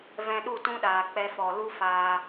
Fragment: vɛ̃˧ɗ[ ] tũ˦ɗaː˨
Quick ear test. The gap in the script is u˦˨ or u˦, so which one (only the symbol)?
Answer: u˦˨